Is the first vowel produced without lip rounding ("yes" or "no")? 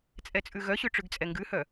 yes